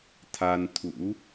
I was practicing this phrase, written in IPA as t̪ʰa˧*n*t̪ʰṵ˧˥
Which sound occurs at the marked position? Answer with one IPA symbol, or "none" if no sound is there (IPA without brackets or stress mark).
n